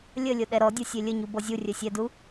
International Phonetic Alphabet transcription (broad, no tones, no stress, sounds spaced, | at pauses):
lʲ ə lʲ o ɗ ɛ ɾ ɔ dʲ o sʲ e lʲ ə ɲ u b ɔ zʲ u rʲ œ sʲ ɛ d u